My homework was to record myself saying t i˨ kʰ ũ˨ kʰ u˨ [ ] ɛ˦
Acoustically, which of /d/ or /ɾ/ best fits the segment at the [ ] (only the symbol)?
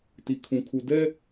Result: d